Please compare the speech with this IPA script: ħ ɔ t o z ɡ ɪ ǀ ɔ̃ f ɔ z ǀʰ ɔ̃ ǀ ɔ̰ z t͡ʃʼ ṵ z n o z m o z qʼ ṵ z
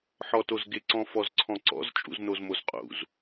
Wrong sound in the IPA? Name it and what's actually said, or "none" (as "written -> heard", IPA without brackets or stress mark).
none